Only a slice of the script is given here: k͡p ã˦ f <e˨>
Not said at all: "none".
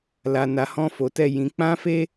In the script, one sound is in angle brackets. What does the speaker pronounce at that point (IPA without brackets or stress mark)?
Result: e˦